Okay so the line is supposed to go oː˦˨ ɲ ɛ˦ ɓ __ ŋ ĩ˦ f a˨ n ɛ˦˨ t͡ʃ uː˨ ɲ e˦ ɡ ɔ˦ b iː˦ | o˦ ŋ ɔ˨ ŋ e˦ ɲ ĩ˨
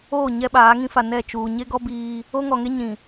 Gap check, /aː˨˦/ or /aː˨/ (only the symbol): aː˨˦